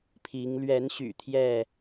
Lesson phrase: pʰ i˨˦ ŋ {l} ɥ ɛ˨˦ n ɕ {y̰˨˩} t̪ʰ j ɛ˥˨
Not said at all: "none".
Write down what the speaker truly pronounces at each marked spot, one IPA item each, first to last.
l, y̰˨˩

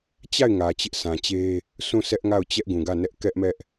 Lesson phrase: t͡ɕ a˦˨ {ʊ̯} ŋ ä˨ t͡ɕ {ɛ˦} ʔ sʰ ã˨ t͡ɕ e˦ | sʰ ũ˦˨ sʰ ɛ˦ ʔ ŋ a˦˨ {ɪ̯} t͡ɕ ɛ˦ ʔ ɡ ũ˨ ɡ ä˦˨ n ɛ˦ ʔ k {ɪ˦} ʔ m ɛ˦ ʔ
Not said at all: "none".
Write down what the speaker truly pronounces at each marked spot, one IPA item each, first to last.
ɪ̯, ɪ˦, ʊ̯, ɛ˦

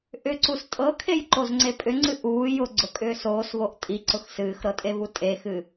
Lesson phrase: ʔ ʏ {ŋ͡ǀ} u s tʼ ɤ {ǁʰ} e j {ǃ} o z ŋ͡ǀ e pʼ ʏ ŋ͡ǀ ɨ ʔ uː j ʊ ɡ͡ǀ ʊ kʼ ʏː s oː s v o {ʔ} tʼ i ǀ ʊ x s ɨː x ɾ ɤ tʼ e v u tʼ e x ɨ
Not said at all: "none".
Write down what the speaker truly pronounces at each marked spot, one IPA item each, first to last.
ǀ, kʰ, ǃ, ʔ

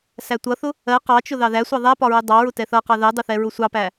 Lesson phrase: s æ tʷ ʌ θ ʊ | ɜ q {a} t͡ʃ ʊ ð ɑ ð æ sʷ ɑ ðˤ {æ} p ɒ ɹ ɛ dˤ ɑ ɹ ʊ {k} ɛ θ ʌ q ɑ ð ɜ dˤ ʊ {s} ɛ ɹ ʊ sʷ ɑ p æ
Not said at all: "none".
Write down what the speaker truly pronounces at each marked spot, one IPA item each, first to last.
ɑ, æ, t, θ

